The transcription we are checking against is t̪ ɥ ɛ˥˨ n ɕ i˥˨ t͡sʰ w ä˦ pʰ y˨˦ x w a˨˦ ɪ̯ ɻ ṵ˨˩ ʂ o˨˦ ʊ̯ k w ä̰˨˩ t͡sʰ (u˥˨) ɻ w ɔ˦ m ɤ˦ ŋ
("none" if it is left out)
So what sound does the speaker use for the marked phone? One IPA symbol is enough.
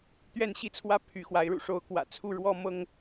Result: u˥˨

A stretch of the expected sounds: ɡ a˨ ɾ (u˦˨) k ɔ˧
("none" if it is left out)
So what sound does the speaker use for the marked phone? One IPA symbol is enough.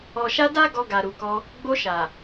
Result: u˨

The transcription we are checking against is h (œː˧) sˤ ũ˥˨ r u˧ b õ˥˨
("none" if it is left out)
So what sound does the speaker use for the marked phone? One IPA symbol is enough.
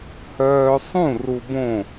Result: œː˧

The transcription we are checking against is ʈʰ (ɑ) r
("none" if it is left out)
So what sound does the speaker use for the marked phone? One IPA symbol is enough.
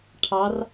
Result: ɑ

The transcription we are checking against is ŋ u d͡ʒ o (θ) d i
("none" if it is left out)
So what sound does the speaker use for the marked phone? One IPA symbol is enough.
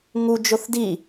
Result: θ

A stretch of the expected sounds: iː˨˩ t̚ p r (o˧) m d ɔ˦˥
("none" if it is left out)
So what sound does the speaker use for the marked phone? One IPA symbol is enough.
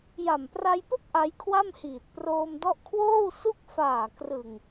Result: oː˧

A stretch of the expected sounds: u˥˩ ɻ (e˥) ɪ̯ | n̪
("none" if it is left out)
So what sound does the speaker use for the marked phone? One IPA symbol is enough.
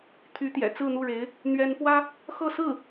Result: e˧˥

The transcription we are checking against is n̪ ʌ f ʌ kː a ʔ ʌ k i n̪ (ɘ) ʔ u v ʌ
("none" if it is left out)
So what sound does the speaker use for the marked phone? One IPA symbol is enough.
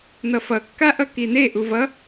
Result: e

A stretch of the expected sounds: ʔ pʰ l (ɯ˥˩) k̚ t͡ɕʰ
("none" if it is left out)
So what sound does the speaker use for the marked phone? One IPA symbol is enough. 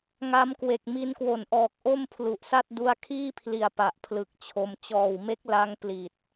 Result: ɯ˨˩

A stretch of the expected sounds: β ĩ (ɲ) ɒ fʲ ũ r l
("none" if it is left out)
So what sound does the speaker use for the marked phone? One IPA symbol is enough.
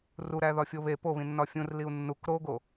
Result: nː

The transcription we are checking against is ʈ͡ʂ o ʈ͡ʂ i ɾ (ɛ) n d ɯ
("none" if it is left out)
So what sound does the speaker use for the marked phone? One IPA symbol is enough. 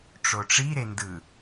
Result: e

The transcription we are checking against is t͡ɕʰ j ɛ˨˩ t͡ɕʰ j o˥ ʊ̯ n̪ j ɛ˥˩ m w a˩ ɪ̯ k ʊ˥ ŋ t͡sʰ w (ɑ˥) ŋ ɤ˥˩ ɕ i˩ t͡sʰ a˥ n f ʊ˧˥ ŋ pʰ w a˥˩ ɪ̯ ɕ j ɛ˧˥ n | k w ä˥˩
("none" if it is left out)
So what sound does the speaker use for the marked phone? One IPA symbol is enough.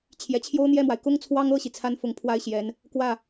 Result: ɑ˥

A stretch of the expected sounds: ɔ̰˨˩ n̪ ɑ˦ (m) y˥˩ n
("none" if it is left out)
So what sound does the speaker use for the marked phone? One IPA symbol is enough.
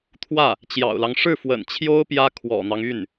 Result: ŋ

